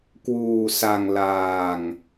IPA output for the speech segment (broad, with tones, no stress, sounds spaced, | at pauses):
k w uː˧ s a˧ ŋ l aː˧ ŋ